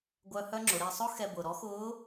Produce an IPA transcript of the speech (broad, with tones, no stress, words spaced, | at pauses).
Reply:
ɡʷœ˧ hœ˥ŋ͡ǁʊ˩˧ɾe˧ sˤʊ˥ xɛ˧bʊː˩ ɾɔ˧˥xʊː˧˥